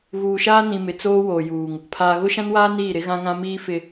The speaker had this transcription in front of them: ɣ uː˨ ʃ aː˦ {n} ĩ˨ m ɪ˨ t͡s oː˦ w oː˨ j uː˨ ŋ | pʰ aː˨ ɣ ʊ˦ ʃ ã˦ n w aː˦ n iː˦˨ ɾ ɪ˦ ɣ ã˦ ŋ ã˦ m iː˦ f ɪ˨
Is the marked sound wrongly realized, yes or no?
no